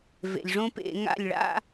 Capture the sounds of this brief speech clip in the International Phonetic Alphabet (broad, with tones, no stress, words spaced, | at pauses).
vḛ˩lʲʐõ˥pḛ˧˩˧ ŋa̰˥˩lʲ ɭa̰˥